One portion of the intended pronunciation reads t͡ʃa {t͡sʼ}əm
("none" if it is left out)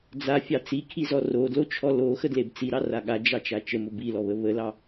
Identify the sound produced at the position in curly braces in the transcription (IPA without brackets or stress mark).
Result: t͡ʃ